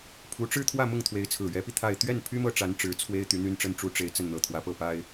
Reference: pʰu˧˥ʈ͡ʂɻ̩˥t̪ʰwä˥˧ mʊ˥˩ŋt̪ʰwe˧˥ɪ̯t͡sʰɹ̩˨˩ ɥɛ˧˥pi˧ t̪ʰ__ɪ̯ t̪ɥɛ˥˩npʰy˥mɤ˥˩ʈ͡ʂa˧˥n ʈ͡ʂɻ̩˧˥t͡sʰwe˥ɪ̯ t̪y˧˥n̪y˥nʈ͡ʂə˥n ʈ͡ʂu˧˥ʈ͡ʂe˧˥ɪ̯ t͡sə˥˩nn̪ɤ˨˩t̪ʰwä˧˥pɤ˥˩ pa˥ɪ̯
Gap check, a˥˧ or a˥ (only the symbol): a˥˧